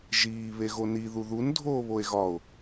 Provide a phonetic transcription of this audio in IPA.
ʒ iː β e ɣ o n i ð u ð u n dʱ oː β o e̯ ɣ ɒ o̯

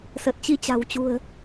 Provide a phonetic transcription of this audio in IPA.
s ə˨˩ t̚ t͡ɕ i˧ t͡ɕ a̤˨˩ w t͡ɕ ṳ˨˩ ə̯

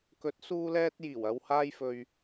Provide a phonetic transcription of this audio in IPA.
k ɵ˨˥ t̚ s uː˧ l ɛː˧ t̚ j iː˨˩ w ɐ˧ w h aː˧ j f ɵ˨ ɥ

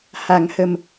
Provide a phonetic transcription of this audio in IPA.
h a˨˩˦ ŋ h ə˨˩ m

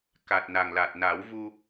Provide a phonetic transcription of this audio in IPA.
k a˨˩ t̚ n a˨˩ ŋ l a˨˩ t̚ n a˨˩˦ w v u˧

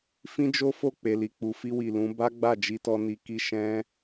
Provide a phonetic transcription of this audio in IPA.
f ĩ˦ d͡ʒ o˦ f o˦˨ k͡p e˨ l i˨ k͡p u˨ f i˧ w i˨ l ũ˨˦ b a˦ ɡ͡b a˦˨ d͡ʒ i˧ t ɔ˧ n i˧ k i˦ ʃ ɛ̃˦

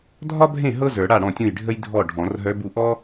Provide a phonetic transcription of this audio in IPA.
dʱ ɒ˥ bʱ ẽ˥˩ ɦ ɤ˥ z ə˞˨˩˦ ɽ a˥˩ ɽ ɔ̃˥˩ tʲ ũ˥˩ j ɖʱ ə˥ j dʱ ɔ˥˩ ɖʱ ɔ̃˨˩˦ r ɦ œ˧˥ b u˥˩ ʔ ɔ˥

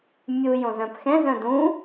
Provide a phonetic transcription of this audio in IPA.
mʲ u j õ z œ̃ p x ɛ̃ z œ̃ d ũ

